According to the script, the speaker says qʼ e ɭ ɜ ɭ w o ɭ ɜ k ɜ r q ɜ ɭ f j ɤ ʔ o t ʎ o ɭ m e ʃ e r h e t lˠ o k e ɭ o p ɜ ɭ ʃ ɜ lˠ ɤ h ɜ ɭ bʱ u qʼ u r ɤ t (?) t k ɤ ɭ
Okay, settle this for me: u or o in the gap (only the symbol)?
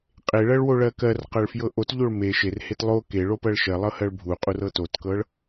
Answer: o